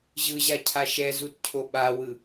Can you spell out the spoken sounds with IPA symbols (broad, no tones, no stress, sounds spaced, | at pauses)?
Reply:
ʑ ɯ ʑ a cʰ a ʃ ɛ z u t cʰ o ɓ a w ɯ